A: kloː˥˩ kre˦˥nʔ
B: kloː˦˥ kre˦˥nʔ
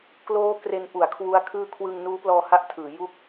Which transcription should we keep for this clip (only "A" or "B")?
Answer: B